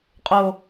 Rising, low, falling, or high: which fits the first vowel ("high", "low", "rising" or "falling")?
low